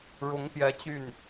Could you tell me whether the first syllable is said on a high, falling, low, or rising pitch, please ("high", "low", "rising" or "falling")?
rising